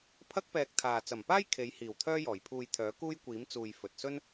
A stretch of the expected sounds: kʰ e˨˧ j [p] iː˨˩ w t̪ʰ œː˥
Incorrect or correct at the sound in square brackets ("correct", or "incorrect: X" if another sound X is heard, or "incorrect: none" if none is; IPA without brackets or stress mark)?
incorrect: h